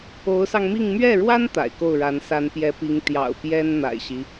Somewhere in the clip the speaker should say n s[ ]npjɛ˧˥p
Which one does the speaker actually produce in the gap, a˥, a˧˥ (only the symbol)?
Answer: a˧˥